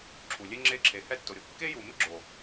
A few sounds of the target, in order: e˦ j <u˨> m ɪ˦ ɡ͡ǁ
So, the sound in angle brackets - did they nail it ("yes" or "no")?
yes